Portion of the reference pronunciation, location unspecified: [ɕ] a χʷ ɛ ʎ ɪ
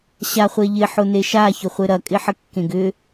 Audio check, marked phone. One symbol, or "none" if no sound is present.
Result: ɕ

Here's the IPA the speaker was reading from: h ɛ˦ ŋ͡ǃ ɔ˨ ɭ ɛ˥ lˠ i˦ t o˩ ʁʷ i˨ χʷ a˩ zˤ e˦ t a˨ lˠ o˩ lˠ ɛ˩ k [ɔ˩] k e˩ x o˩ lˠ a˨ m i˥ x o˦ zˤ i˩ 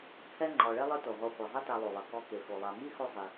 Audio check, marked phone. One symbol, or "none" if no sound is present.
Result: ɔ˦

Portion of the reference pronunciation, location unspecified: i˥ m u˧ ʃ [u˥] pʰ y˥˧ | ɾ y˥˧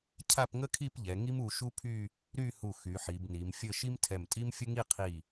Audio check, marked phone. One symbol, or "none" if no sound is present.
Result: u˥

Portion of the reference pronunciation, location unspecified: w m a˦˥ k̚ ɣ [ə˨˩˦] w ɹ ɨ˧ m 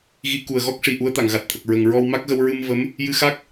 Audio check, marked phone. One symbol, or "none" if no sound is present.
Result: ə˧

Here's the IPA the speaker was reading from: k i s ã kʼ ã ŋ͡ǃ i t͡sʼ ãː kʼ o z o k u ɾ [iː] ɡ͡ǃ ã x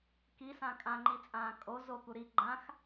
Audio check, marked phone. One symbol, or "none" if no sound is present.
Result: i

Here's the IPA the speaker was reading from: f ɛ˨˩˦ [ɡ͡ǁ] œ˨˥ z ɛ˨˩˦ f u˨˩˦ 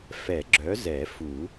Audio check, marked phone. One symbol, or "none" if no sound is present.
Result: ɡ͡ǁ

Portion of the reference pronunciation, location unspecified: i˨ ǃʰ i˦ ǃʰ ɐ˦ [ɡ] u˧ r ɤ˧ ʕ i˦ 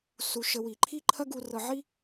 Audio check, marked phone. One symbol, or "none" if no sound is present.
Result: ɡ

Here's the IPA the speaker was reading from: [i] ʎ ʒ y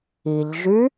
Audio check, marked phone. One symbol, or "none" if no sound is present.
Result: i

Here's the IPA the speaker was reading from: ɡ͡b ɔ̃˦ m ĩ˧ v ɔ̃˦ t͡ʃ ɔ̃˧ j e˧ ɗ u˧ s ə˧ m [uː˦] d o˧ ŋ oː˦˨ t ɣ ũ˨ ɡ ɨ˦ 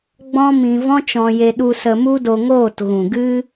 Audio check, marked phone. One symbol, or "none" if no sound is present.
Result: u˦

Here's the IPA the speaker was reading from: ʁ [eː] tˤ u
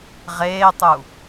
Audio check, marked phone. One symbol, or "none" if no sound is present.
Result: eː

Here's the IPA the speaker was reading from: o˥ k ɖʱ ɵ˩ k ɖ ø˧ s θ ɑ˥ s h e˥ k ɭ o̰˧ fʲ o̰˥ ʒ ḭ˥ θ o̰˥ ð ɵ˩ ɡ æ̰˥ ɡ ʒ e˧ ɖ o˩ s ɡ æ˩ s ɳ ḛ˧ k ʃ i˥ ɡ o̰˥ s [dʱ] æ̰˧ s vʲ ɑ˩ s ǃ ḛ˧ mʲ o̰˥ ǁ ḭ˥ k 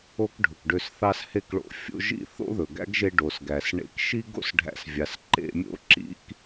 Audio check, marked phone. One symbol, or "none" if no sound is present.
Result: ɖʱ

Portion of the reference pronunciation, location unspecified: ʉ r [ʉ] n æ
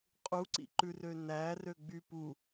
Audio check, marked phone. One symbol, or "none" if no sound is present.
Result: ø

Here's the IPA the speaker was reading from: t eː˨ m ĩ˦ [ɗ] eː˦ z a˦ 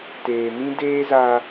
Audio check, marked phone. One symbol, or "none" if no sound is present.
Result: d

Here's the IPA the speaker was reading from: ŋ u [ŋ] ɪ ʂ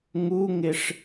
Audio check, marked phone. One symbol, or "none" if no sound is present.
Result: ŋ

